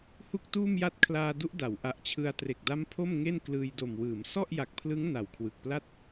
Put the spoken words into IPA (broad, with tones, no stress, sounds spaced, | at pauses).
h u˥˩ k̚ t uː˥˩ m j a˥˩ t̚ kʰ l aː˧ d u˦˥ ʔ d a˩˦ w ʔ a˨˩ ʔ t͡ɕʰ ɯ˧ a̯ t r e˨˩ k̚ d a˦˥ m pʰ o˥˩ m ŋ e˥˩ n k l ɯː˧ j d o˨˩ m w ɯː˩˦ m s ɔ˥˩ ʔ j a˨˩ k̚ pʰ l ɯ˦˥ ŋ n a˨˩ w kʰ w ɯ˨˩ k̚ p l a˥˩ t̚